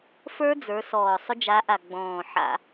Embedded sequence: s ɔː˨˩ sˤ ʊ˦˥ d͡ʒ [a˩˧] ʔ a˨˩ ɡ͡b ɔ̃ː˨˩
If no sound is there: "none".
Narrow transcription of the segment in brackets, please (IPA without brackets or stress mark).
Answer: a˨˥